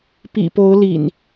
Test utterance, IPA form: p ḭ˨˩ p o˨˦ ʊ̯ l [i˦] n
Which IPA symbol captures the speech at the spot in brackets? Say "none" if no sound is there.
ḭ˨˩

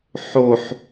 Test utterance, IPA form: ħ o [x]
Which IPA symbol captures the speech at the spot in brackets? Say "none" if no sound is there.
ħ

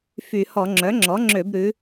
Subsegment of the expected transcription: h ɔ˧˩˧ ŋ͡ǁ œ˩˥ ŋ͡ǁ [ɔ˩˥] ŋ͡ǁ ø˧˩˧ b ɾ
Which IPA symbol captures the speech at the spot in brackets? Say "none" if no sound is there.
ɔ˩˥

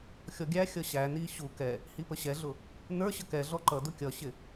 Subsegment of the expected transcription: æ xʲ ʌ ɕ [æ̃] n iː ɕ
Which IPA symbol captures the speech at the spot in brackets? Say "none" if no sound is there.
æ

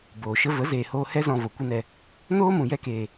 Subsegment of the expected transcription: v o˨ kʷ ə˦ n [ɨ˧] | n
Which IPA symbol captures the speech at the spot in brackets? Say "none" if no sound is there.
ɛ˧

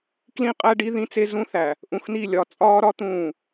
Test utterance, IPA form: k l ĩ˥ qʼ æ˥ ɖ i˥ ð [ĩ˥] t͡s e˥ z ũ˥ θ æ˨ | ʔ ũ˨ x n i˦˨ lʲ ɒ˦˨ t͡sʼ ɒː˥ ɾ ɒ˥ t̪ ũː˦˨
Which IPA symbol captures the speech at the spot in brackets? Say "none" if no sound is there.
ĩ˥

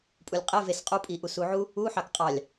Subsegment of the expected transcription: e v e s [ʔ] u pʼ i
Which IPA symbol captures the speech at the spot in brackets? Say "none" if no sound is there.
qʼ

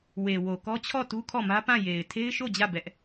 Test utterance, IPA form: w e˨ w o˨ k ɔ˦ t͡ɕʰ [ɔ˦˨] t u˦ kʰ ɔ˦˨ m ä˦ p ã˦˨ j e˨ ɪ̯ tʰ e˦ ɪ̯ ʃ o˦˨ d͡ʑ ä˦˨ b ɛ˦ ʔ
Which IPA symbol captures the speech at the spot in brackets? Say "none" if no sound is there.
ɔ˦˨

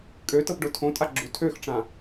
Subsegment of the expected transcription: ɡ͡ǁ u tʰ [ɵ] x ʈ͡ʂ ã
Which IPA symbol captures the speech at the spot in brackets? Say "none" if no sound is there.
ø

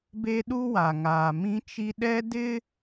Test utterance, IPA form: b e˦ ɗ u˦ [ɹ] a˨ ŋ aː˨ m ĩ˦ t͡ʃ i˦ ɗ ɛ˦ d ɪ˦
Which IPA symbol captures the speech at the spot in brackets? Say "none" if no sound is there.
w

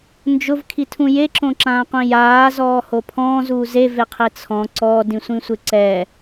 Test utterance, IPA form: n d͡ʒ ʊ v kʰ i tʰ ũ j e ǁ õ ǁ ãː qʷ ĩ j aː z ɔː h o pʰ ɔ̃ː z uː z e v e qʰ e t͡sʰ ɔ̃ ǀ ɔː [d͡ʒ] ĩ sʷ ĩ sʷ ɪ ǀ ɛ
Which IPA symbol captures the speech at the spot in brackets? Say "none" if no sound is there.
d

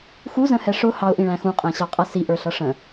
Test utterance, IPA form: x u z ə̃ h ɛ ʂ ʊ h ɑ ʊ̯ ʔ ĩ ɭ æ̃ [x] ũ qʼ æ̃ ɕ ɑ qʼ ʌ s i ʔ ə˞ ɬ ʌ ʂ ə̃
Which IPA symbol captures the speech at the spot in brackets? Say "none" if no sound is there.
x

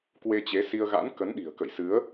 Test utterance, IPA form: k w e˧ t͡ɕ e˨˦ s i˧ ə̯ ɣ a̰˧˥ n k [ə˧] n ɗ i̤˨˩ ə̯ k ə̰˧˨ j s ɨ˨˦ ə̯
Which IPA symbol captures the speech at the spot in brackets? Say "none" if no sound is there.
ə˨˦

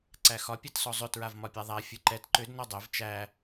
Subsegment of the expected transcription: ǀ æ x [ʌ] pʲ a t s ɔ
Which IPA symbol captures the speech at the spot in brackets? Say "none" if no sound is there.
ɒ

